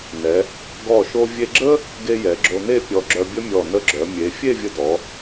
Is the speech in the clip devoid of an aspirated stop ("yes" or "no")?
yes